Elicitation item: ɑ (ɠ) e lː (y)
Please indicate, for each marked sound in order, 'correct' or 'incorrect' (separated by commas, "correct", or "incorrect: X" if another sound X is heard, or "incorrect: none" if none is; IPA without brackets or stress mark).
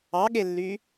correct, correct